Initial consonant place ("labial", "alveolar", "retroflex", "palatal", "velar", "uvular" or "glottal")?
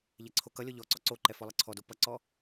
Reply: palatal